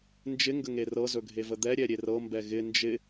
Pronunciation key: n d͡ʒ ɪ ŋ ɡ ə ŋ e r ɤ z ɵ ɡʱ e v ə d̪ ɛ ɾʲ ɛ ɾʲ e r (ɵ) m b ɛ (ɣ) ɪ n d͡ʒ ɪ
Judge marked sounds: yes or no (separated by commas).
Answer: no, yes